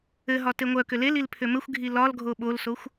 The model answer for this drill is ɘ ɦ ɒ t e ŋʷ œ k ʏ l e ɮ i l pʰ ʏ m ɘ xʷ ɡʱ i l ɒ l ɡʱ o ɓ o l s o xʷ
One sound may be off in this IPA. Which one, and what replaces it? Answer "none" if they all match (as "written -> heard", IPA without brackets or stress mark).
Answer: ɮ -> l